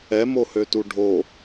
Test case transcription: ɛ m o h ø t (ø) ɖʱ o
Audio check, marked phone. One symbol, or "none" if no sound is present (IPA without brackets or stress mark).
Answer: u